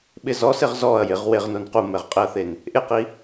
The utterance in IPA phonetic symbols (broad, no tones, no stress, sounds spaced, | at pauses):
ɓ ɪ z ɔ s ɪ ʁ z ɔ ɐ̯ j ɪ ʁ w e ʁ n o n q u m ɛ ʁ qʼ ɪ ɐ̯ θ e n | ʔ ɪ q i